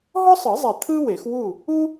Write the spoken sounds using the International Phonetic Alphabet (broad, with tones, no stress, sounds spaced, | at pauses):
ɦ ɔ˥ sˤ ɯ˨˩˦ zˤ ɛ˨˩ t̪ʰ ɯ˥ w e˨˩˦ x w u˥˨ | u˥